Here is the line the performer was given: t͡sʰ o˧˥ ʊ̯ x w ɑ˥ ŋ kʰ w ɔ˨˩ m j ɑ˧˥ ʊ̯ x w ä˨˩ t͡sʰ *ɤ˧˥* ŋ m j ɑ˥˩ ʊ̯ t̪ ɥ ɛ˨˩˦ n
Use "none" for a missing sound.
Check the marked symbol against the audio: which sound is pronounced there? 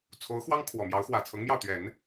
ɤ˧˥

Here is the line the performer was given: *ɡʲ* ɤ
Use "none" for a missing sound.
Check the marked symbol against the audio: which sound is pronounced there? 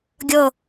ɡʲ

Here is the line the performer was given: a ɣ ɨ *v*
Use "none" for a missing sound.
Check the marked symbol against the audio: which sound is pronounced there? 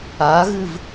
v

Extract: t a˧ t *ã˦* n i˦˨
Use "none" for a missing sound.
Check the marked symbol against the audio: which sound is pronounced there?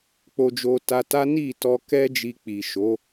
a˦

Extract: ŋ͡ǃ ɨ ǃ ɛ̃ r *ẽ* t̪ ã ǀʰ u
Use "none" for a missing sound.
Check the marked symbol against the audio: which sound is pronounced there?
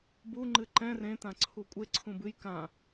ẽ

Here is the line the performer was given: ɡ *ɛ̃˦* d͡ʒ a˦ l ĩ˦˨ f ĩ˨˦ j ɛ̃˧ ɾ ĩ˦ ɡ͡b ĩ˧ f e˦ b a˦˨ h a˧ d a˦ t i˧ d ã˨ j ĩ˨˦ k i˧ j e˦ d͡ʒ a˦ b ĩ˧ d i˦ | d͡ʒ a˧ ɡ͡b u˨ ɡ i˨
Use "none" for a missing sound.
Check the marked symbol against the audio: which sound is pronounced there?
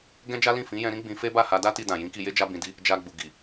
ɛ̃˦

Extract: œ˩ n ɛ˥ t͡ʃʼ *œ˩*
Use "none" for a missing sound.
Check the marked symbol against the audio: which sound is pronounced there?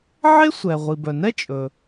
ɵ˩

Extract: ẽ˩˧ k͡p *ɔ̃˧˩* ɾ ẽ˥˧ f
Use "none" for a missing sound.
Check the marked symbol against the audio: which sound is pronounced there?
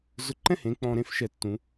ɔ̃˧˩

